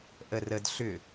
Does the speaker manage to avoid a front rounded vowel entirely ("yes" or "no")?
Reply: no